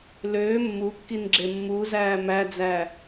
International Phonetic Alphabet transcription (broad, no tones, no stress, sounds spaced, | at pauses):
l øː mː u kː i n ɡ͡ǁ e mː u z æː m æ d͡z æ